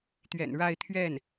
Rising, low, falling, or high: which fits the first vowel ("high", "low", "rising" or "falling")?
low